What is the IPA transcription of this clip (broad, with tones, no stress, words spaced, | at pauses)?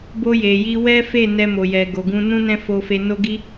bo˧je˨ji˧ wɛ˦ fe˦˨ nɛ˧mo˨jɛ˨ ɡo˨ɡũ˧ nũ˦nɛ̃˦ fo˧fe˧no˦ɡi˦